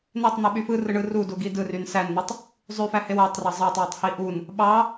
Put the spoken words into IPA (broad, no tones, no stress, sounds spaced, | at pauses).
n e tˤ n̪ ɯ ɓ y f ɯ r ɯ ɳ ɯ r u d u ɡ i d ɯ r y n s æ n n̪ ɯ tˤ | zˤ y f æ h e w æ tˤ r ɑ zˤ ɑ tˤ w y tˤ h i ʔ u n | ɓ ɑ